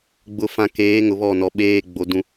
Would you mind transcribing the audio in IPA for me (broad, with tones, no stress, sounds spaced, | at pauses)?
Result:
ɡ͡b ʊ˨ f ã˨ k eː˨˦ ŋ ʊ˨ β ɔ˦˨ n ɔ˨ ɓ eː˦ ɡ͡b o˦ d ũ˦